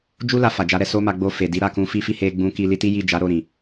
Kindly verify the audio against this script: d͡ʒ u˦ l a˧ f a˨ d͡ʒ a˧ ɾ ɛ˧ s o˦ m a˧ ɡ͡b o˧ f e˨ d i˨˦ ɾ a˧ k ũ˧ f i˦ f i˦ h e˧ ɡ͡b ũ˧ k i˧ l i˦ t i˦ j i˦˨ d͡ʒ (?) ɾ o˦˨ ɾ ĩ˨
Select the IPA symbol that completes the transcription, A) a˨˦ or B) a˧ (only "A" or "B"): A